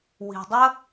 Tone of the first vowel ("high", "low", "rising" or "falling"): low